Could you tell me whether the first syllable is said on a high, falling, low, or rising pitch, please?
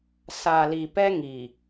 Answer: low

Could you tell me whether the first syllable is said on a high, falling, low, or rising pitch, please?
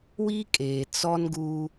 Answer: high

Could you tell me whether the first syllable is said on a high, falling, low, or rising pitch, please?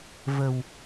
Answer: low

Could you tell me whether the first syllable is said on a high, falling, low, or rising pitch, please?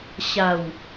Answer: low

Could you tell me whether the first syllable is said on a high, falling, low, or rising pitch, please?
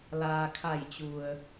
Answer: low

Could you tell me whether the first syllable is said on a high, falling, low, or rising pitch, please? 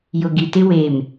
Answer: low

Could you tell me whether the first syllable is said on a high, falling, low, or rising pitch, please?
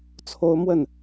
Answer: high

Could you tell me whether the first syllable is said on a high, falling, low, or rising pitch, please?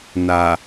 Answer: low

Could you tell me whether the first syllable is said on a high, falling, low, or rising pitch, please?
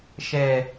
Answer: low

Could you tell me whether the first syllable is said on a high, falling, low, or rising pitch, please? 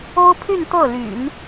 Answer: high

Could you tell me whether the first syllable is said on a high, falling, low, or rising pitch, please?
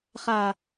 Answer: low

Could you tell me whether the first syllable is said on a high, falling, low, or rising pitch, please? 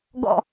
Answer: falling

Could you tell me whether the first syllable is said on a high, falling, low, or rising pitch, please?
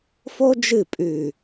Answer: high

